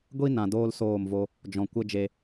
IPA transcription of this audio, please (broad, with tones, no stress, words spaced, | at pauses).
ɡʷi˦nã˨doː˧l soː˦˨mvo˦ | d͡ʒɔ̃˨kʷə˦ d͡ʒe˧